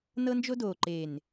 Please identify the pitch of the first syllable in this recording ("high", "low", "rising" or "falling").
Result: high